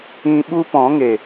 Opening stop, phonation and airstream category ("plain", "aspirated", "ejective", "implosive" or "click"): implosive